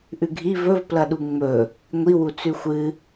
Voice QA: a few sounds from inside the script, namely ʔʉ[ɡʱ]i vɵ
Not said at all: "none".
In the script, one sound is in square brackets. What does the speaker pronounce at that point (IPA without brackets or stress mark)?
ɡʱ